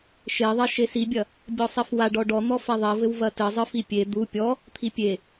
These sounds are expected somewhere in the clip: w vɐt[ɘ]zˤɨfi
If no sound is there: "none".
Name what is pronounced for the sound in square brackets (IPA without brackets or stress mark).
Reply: ɘ